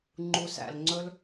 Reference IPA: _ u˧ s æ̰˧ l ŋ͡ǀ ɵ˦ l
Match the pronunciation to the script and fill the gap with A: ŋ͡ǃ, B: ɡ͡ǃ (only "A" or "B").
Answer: A